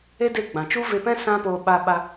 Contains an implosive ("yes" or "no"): yes